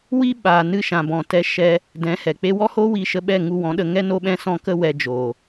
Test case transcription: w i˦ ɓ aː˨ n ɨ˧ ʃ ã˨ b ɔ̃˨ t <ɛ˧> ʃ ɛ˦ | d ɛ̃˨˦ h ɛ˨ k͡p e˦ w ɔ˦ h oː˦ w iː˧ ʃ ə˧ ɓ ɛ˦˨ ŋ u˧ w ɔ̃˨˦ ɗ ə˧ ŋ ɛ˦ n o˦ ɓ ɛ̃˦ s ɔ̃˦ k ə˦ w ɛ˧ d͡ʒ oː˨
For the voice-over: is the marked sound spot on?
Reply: no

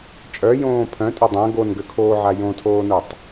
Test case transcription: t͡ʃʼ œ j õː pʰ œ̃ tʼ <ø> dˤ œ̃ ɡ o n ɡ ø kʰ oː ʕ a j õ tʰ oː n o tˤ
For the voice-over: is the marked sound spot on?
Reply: yes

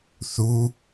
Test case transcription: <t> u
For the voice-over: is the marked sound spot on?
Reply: no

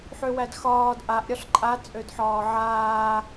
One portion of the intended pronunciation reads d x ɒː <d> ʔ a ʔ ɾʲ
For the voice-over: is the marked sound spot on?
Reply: yes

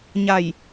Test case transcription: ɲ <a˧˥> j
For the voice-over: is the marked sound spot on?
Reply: no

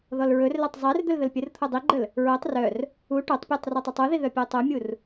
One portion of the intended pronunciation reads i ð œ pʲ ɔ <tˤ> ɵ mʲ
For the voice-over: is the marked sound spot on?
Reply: yes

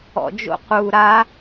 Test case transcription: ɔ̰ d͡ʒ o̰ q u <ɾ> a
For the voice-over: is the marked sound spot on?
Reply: yes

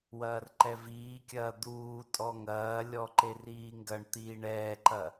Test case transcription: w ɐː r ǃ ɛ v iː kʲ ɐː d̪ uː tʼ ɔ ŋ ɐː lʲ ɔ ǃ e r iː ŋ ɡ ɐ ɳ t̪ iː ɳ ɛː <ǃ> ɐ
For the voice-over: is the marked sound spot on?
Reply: yes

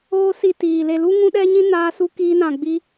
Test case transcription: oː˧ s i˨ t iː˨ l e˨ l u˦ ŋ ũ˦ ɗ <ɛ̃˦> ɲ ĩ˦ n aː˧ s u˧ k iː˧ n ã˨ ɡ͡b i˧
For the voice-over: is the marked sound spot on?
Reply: no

